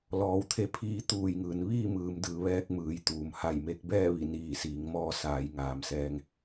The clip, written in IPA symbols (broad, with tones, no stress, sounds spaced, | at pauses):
l ɔː˩˧ w t̪ʰ e˧˥ pʰ iː˧˥ t̪ uː˧˩ j ŋ ɯː˩ n ʋ iː˥˨ m ɯː˩˧ m d ɯː˩˧ ʋ ɛː˧ k̚ m ɯː˩˧ j t̪ uː˩ m h a˧˩ j m e˧ k̚ b ɛː˥˨ ʋ i˧˩ n iː˧˩ s iː˩˧ ŋ m ɔː˧ s aː˩˧ j ŋ aː˩˧ m s ɛː˧ ŋ